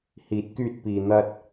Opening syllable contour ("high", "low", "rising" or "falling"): rising